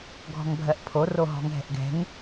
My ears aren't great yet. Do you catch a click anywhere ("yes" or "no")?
no